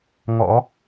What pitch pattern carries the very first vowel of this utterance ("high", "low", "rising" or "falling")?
rising